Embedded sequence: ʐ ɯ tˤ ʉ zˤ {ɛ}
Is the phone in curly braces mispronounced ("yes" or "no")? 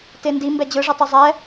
no